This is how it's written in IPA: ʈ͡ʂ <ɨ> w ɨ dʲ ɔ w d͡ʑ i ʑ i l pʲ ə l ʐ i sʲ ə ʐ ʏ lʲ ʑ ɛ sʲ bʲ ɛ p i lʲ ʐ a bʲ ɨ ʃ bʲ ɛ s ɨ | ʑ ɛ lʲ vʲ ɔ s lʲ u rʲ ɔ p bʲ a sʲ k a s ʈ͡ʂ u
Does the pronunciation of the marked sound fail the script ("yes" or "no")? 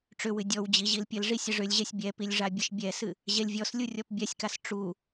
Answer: yes